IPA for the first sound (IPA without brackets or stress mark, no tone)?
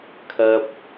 kʰ